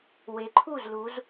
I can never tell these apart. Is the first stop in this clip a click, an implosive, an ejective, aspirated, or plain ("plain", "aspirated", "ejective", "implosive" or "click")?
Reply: click